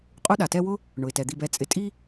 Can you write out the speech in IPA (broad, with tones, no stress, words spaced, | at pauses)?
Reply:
qʼu˦ɗa˩tɛ˦wʊ˥ | ɳʊ˩ɪ̯tɛ˩d̪i˨b ɛ˨t͡sʼɪ˨tʼi˦